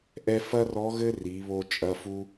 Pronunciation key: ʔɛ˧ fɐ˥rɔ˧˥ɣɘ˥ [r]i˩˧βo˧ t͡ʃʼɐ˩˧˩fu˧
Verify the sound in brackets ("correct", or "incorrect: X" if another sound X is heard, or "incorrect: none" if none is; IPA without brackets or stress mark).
correct